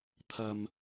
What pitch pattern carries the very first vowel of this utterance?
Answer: low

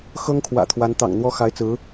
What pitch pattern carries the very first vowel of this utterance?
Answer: high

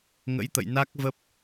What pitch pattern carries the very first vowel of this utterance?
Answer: rising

